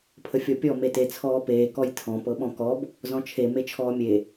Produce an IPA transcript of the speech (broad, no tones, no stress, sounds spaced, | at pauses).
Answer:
pʰ ə fʲ ɔ pʲ ɔ m e t e t͡sʰ ɔː p eː k ɔ j tʰ ɔ̃ p ɤ ɓ ɔ̃ k ɔ b | z ɔ̃ t͡ʃʰ e m e t͡ʃʰ ɔː mʲ e